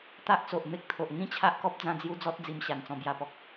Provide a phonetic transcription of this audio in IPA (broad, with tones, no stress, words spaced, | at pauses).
t̪a˦ʔt͡so˨ʔ me˦k̚t̪ʰo˨ʔ ŋĩ˥˧t͡ɕʰa˦ʔkɔ˦p̚ d͡zã˥˧d͡zju˦d͡zɔ˦t̚d͡zi˧m ɕa˨˩nt͡sɔ̃˧bja˧pɔ˨k̚